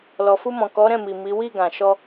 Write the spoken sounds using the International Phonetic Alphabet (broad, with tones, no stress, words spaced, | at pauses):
lɔ˨fu˧mɔ̃˨ kɔ˨˦ɾɛ̃˦˨mi˨ mi˨˦ wi˦˨ɡã˨ ʃɔ˧